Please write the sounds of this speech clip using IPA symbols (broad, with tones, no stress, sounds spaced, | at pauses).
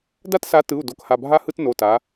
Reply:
d a˥ t s a˨˥ t ɯ˩˧˩ u̯ d o˨˥ k h a˩˧˩ bʱ a˥ h ɯ˥ t n o˩˧˩ t a˩˧